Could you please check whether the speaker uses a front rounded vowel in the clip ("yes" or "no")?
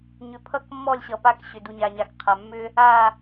yes